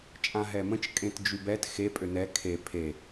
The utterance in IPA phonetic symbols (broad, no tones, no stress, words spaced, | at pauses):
t͡ʃʼãɦɛmə̃t͡ʃ kʼẽtd͡ʒybɛt xe pʼønɛ kʰe pʰe